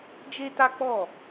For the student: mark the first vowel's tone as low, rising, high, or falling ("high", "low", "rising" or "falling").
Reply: high